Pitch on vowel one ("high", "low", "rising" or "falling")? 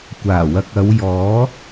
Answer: low